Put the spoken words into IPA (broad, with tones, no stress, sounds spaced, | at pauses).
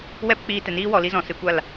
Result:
w ɛ˦ p k͡p iː˧ t ɛ˨ n iː˦ w ɔ˧ l i˦ z ɔ̃˨ s ɨ˧ kʷ a˦˨ l